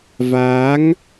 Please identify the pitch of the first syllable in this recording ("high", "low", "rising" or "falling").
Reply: rising